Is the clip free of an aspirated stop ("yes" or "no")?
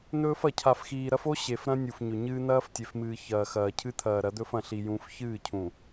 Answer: no